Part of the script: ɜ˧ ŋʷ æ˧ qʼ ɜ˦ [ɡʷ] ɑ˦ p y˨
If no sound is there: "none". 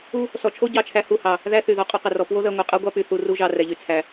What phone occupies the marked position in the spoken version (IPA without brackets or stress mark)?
ɡʷ